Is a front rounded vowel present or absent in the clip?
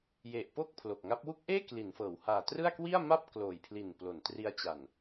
absent